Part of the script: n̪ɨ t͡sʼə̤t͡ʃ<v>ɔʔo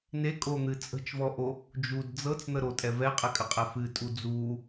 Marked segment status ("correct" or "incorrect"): correct